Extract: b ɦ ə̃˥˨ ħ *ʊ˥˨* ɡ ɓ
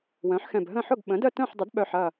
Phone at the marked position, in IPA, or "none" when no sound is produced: ʊ˥˨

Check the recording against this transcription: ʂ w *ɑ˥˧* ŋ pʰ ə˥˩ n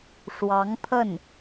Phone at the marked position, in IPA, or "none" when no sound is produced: ɑ˧˥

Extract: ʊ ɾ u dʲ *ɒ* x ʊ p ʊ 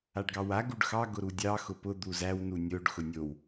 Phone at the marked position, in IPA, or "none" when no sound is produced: ɑ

